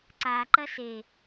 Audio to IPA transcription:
ǀ a ǃ ɐ s e

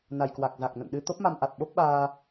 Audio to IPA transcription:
n a˨˩ j k w a˨˩ k̚ z a˨˩ k̚ n ə̰˧˨ n ɗ ɨ˧ t̪ o˦˥ p̚ m a˧ m ʔ a˨˩ t̚ ɓ o˦˥ p̚ ɓ aː˧

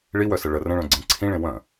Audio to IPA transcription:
ɭ i w œ s ə ɭ ə r ə̃ ɭ œ̃ ɡ͡ǀ ẽ ǀʰ ĩ ɭ ẽ w œ̃

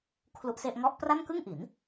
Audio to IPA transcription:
kʰ l u˦˥ ʔ s e˥˩ ʔ ŋ ɔ˦˥ ʔ p r a˥˩ n k ɯ˥˩ ŋ ʔ i˩˦ n

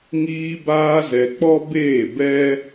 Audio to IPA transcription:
ŋ iː˧ b aː˧ z ɛ˨ k͡p ɔ˦ b eː˦˨ b ɛ˦

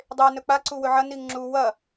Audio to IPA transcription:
dˤ e n ɵ k͡p a ǀ u w ɵ ʕ ɐ n i ŋ ŋ͡ǁ u w ɐ

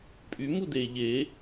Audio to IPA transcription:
pʼ y m u d e ʎ e

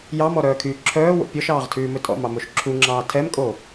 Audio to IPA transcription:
j ɑ m ɔ ɾ œː kʰ yː ǁʰ œː w o̰ pʲ ɔ ʃ ɑː ʁ tʰ ʉː m ɵ tʼ ɔ̰ m ɑ m o ʃ ǁʰ u ŋ͡ǁ ɑː tʰ ɛ m kʼ o

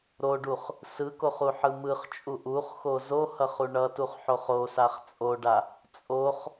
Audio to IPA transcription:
ɾ o ɖ u χ | s ɯ k o χ u ħ ɯ m ɯ χ t͡ʃʼ u ʔ u χ x o z o h ʌ χ u ɳ ʌ t u χ ħ o χ o s a χ t͡sʼ o ɖ a | t͡sʼ o χ

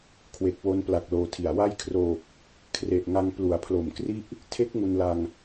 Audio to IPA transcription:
kʰ w e˨˩ k̚ w o˧ n p l a˨˩ k̚ l oː˧ tʰ i˨˩ a̯ w a˥˩ j kʰ r oː˨˩ k̚ | kʰ r e˨˩ ʔ ŋ a˧ ŋ p l u˩˦ a̯ pʰ l o˨˩ m k r i˥˩ ʔ | tʰ e˦˥ k̚ ŋ u˧ n l a˧ ŋ

